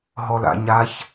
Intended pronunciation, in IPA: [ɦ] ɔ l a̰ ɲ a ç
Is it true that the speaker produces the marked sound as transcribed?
yes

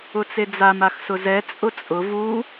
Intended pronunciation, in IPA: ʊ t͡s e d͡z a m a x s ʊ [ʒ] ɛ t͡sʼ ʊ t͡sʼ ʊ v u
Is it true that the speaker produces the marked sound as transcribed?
no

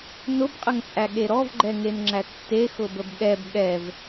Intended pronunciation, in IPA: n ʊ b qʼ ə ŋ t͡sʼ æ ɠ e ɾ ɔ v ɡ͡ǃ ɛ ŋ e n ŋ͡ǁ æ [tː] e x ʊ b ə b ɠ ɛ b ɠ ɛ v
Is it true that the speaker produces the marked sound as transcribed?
yes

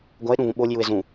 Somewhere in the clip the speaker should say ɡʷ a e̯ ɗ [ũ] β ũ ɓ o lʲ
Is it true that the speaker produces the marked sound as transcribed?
yes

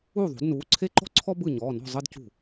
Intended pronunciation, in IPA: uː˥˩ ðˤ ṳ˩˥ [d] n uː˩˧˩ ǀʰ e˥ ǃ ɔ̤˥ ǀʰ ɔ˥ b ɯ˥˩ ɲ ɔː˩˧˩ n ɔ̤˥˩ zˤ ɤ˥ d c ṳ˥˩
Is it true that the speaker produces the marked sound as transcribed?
yes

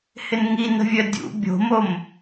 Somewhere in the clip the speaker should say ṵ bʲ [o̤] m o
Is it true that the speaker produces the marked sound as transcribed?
yes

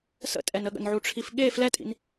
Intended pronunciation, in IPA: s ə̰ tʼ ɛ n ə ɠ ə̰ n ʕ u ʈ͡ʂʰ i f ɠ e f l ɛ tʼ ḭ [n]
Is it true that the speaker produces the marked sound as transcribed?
yes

